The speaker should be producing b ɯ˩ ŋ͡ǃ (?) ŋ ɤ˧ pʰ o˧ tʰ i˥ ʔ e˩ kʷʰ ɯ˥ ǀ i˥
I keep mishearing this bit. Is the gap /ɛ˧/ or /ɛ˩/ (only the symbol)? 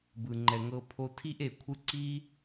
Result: ɛ˩